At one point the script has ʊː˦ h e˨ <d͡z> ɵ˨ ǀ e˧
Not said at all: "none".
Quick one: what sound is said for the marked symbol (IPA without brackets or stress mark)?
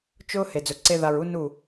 d͡z